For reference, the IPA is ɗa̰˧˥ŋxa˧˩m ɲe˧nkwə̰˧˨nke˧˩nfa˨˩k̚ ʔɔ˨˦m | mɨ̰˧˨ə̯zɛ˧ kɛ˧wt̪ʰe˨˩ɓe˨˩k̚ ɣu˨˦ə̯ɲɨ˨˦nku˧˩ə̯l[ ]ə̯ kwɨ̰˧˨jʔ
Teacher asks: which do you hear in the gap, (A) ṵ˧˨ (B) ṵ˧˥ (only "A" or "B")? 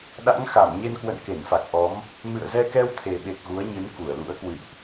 B